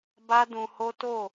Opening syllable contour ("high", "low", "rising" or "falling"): high